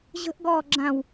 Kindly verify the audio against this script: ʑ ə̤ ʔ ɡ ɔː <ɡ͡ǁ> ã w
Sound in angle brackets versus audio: correct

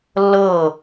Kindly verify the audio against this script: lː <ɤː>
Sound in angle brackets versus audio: correct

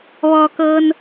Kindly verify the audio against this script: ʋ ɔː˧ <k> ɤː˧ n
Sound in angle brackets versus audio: correct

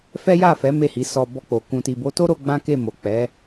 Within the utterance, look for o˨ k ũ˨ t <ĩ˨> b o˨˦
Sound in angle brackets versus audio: incorrect: i˨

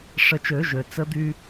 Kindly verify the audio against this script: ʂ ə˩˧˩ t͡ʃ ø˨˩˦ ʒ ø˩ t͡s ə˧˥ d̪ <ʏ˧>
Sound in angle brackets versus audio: incorrect: y˧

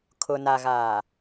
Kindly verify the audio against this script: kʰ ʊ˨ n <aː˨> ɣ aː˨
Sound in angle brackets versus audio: incorrect: a˨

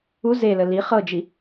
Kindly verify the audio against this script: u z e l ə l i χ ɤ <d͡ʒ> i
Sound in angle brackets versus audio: correct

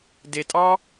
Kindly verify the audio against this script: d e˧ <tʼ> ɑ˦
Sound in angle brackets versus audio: correct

